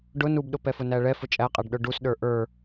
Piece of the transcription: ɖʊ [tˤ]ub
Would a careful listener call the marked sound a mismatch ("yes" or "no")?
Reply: yes